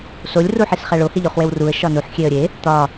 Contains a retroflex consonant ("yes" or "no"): yes